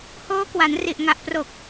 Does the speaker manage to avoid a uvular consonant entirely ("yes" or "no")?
yes